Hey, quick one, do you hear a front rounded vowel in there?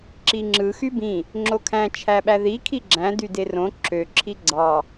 yes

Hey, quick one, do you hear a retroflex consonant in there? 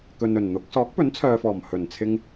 no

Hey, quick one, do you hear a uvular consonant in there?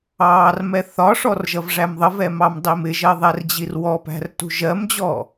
no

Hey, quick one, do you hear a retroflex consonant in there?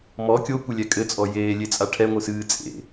yes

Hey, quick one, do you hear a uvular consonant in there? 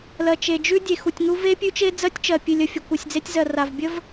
no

